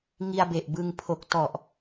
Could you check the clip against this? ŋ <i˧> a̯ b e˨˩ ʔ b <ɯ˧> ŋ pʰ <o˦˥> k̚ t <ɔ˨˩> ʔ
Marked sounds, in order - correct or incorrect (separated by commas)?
correct, correct, incorrect, correct